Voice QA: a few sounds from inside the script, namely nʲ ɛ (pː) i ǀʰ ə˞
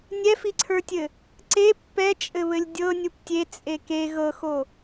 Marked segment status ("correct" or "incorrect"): incorrect